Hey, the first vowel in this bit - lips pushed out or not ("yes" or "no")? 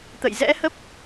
no